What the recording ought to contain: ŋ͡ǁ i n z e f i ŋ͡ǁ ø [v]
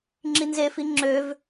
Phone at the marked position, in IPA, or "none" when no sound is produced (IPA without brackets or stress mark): v